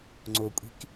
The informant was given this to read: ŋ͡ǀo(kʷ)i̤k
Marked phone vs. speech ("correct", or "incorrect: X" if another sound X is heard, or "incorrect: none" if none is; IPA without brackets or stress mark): incorrect: kʷʼ